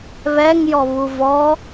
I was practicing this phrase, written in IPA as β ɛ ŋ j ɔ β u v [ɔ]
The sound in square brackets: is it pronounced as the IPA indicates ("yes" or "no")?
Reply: yes